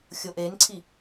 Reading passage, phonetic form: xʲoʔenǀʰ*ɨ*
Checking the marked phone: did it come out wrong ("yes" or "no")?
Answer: yes